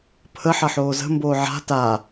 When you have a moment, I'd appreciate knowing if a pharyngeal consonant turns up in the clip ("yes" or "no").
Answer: yes